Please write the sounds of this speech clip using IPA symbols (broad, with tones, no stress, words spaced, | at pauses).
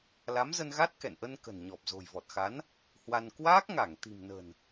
la˨˦mzə˧nɣa˦˥t̚ kɛ̰˧˨nʔə˧nkə̤˨˩n ɲɔ˨˩p̚zo̤˨˩jvɔ˨˩t̚xa˨˦n | hwa˧n kwaː˦˥k̚ŋa˧˩ŋ t̪i̤˨˩mnə̤˨˩n